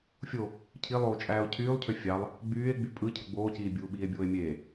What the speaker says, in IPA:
fʲ o | cʰ i lˠ oː t͡ʃʼ æː o̯ cʰ yː lˠ cʰ ø fʲ ɑ lˠ | ɡ͡b yː e̯ ɡ͡b y pʼ ɯ cʰ ɯ ɡ͡b oː c iː bʲ uː ɓ iː e̯ bʲ oː e̯ mʲ eː

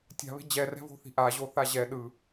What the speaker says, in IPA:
tʲ a̤ β e̤ d͡ʑ ɛ r ɛ̤ v o̤ θ i̤ ʔ a ʑ o θ a ʑ ɛ ɗ ɯ

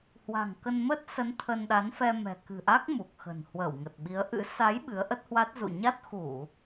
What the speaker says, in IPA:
h w a̤˨˩ ŋ k ə˧ n m ə˦˥ t̚ s ə˨˦ n t̪ʰ ə˧ n ɗ a˨˦ n f ɛ˧ m ɛ̤˨˩ k ɨ̤˨˩ ʔ a˦˥ k̚ m u˨˩ k̚ x ə̤˨˩ n h w əː˧˩ w ŋ ə˨˩ t̚ ɓ i˨˦ ə̯ ʔ ɨ̰˧˥ s a˨˦ j ɓ ɨ˨˦ ə̯ ʔ ə˦˥ t̚ h w a˦˥ t̚ z ṵ˧˨ ɲ a˦˥ t̚ x u˧˩˨

